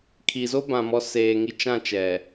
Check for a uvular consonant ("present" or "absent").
absent